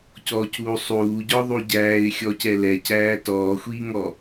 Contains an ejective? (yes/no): no